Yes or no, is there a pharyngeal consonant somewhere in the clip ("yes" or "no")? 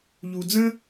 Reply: no